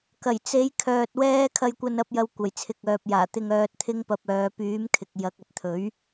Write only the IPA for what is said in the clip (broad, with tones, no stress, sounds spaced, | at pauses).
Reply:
k ɐ˨˩ j t͡s e˨˥ j kʰ œː˨ t̚ w ɛː˥ kʰ ɐ˧ j kʷ ɐ˧ n ɐ˨˥ p̚ j ɐ˧ w kʷ ɐ˨˩ j t͡sʰ ɪ˨ k̚ œː˨ p̚ j aː˨˩ t̪ ɪ˧ ŋ œː˧ t̚ t̪ʰ ɪ˥ ŋ p ɐ˧ p̚ œː˨˧ p yː˨˥ m kʰ ɪ˨ k̚ j ɐ˨˥ k̚ ɐ˨ t̚ t̪ʰ ɵ˨˥ ɥ